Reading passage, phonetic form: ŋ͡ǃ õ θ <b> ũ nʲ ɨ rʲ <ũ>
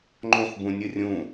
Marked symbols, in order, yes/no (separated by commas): yes, yes